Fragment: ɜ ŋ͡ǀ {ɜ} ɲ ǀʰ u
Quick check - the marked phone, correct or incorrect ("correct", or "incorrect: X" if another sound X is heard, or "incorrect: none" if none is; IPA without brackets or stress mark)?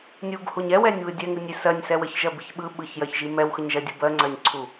correct